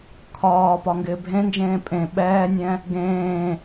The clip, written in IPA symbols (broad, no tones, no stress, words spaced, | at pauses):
kʰɒːpɒ ŋɡɪːbʱẽnd͡ʒẽː pʼẽ ɓɛːnʲɛ̃ | ɡẽː